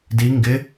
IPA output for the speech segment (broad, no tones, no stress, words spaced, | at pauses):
di ŋɡɪ